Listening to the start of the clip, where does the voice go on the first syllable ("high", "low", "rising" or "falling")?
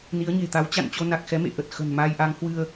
rising